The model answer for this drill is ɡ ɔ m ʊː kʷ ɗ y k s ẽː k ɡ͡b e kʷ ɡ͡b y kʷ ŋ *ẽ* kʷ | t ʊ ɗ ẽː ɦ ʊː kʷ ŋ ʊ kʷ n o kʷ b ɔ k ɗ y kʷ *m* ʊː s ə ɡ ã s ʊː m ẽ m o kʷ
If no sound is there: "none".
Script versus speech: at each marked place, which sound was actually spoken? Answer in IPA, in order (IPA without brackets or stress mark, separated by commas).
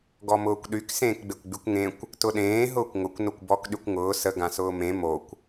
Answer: ẽ, ŋ